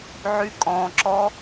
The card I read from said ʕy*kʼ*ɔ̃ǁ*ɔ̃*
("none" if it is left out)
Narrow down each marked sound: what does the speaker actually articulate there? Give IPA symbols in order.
kʼ, ɔ

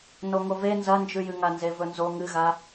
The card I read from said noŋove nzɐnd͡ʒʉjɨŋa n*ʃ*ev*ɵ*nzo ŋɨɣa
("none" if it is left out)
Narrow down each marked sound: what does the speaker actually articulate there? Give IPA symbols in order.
z, ɵ

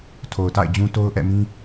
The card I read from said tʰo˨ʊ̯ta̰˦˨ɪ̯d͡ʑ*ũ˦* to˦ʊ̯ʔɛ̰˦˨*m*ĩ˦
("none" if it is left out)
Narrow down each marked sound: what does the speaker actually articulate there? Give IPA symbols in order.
ũ˦, m

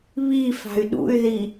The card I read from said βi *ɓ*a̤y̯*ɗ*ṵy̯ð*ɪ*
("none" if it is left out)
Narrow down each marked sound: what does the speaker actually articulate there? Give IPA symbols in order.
f, ɗ, i

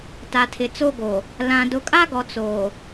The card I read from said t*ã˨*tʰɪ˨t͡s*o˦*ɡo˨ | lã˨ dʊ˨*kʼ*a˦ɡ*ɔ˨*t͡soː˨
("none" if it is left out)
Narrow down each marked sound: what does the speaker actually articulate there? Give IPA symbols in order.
a˨, o˦, kʼ, ɔ˨

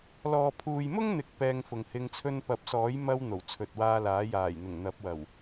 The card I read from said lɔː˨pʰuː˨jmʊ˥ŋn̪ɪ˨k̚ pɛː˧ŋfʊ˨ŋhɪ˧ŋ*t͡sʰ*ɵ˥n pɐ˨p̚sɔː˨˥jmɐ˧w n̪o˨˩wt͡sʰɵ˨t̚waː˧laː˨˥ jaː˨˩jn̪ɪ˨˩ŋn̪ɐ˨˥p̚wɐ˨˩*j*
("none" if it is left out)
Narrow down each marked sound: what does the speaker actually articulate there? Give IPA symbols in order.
t͡sʰ, w

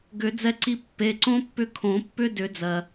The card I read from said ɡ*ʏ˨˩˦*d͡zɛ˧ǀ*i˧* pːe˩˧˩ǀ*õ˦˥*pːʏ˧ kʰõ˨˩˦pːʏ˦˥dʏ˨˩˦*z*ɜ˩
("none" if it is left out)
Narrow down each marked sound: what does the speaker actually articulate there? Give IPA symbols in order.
ʏ˨˩˦, i˧, õ˦˥, d͡z

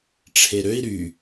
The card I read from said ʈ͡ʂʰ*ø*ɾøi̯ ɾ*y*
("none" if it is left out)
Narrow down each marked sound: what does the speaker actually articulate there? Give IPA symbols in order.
e, y

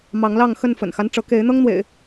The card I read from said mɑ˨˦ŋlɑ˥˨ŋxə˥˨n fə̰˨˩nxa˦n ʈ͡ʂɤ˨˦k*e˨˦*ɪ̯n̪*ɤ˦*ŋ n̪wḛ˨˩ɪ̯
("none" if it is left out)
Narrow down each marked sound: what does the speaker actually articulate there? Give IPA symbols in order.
e˨˦, ɤ˦

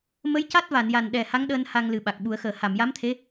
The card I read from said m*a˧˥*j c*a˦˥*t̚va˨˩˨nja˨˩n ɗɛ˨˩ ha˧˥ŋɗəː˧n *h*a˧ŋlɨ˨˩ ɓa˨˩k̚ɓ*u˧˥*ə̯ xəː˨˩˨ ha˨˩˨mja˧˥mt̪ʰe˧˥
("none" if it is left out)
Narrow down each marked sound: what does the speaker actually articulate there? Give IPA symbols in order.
ə˧˥, a˦˥, h, u˨˩˦

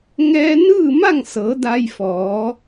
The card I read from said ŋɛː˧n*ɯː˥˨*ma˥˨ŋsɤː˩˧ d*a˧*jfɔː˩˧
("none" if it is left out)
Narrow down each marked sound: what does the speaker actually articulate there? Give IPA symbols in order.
ɯː˥˨, a˧

